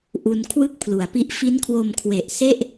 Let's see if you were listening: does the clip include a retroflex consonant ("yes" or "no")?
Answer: no